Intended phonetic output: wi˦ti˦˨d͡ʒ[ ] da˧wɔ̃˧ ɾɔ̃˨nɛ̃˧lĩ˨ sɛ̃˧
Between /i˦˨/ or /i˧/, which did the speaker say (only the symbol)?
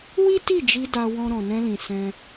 i˧